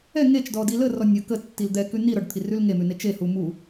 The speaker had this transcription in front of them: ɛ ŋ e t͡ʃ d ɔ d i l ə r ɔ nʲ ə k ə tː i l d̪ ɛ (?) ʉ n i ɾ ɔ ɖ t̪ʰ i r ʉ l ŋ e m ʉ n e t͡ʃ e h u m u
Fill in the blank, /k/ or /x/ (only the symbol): k